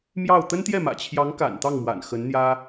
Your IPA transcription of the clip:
m j ɑ˥˩ ʊ̯ t̪ ə˥ n t̪ j ɛ˥˩ m ä̰˨˩ t͡ɕʰ j ɑ˧˥ ŋ k a̰˨˩ n t̪ ɑ˥˩ ŋ m w a̰˨˩ n x ə˧˥ n n̪ j ä˥

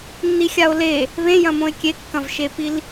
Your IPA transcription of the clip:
nː i xʲ a o̯ l e | β ẽ j ɐ̃ m õ e̯ kʲ e kː ɐ̃ v ʃ e p i l

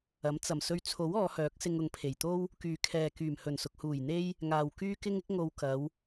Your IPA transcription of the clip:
ɐ˨˥ m t͡s ɐ˨˩ m s ɵ˧ ɥ t͡sʰ o˨˥ w ɔː˨˧ h œː˨˥ k̚ s ɪ˧ ŋ ʊ˨˧ ŋ pʰ e˨˩ j t̪ o˥ w | k yː˨ kʰ ɛː˨ k yː˨˩ m h ɵ˨˩ n s ʊ˨ k̚ h uː˨˩ j n̪ e˥ j | ŋ aː˨ w k yː˥ k ɪ˥ ŋ ɪ˥ k̚ ŋ o˧ w k ɐ˨˧ w

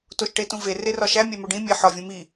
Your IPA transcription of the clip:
t o ʃ ʈ e t ũ v e r e r ɒ ʃ æ mʲ æ m o ɖ ĩ mʲ e ħ ɒ vʲ ũ m i

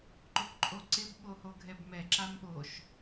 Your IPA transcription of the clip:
ǃ o kʷ ǃʼ o ǀ ɪ b ɓ o h o ɡʱ ɛ b m ɛ ǁ a m ɓ o ʃ

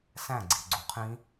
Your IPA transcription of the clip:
s æ̃ ɡ͡ǀ i ɡ͡ǀ u qʰ ĩ

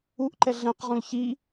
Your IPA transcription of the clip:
u ʔ ǃ ɛ ɮ ɛ̃ q ʁ ũ l ç i

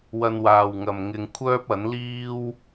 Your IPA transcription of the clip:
w ɐ˧ n w aː˨ w ŋ ɐ˨ m ŋ ɪ˧ ŋ kʷʰ œː˥ p̚ ɐ˨˥ n l iː˥ w

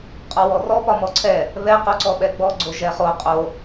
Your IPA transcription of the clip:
qʼ ɔ w ɔ r ɔ p ɒ m ɔ ǀʰ ɛ | β ɛ q o ǀ ɔ ɓ ɛ ɡ͡b ɔ ɡ͡ǀ o ʒ ɛ χ o qʼ o

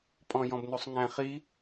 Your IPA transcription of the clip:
pʼ ɔ̃ j ɔ̃ b n u sˤ ŋ æ̃ χ i

